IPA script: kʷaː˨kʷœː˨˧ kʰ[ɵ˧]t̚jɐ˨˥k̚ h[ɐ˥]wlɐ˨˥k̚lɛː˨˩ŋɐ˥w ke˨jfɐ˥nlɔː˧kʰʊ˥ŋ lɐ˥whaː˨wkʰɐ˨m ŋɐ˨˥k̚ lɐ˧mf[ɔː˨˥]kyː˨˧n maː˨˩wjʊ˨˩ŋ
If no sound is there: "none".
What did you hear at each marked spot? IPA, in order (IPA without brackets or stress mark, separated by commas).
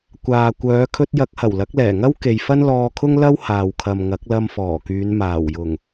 ɵ˧, ɐ˨˩, ɔː˨˩